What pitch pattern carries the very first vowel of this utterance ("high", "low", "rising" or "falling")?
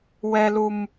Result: low